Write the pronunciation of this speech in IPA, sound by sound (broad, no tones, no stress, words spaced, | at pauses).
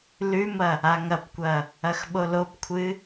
lʉmɐ | aŋɐpkʷɐ | ɐxɓolopkʷʰɨ